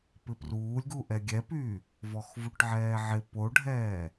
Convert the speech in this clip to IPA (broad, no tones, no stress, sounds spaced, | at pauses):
p ɪ p r uː lʲ ɡ u ʔ ɛ ɡʲ ɛ p yː | v ɔ x v u ʈ ʕ ɛː ʕ ɪ p o ɖʱ ɛː